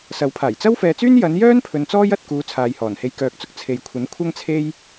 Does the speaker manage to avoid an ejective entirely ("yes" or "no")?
yes